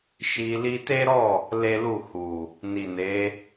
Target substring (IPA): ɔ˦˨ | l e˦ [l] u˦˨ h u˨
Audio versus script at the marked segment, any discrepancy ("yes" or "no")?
no